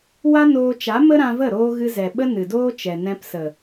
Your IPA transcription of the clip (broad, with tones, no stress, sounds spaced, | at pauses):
w a˦ n oː˧ t͡ʃ a˨˦ m ə˦ ɾ ã˧ v ə˦˨ ɾ oː˦ ɣ ɨ˧ z ɛ˨ ɓ ə˦ n ɨ˨ d oː˦ t͡ʃ ɛ˨ n ɛ̃˧ p s ə˨